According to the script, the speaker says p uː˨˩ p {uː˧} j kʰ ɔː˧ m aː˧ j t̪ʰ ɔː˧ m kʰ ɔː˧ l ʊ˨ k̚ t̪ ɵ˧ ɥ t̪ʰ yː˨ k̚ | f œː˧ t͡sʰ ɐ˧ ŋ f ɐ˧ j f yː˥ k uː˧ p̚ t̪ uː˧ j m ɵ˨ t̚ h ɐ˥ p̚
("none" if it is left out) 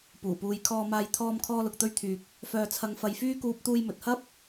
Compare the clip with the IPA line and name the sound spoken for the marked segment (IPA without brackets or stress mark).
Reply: uː˨˧